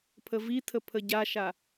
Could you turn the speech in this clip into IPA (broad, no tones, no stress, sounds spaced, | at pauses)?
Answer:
pʰ ə v i tʰ ə pʰ ə ɟ a ʃ a